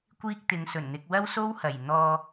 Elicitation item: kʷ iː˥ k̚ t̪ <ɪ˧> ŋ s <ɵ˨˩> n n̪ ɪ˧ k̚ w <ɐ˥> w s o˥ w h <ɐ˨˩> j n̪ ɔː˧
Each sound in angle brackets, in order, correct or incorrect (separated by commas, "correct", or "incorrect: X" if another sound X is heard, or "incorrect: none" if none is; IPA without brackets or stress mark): incorrect: ɪ˨˧, correct, correct, correct